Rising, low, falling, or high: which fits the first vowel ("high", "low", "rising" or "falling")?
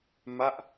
falling